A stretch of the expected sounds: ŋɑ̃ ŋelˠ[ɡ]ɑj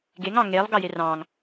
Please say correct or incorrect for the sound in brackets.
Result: correct